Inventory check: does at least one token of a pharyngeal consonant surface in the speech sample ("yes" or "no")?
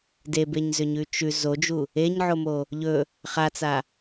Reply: yes